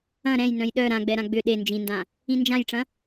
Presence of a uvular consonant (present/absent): absent